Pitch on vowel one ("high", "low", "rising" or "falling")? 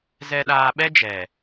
low